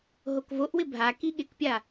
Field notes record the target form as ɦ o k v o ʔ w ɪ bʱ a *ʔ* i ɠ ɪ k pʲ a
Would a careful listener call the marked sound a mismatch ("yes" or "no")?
yes